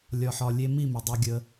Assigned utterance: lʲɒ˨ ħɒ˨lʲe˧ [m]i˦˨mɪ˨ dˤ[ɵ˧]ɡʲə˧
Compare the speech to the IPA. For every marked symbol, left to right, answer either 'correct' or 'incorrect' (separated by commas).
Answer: correct, incorrect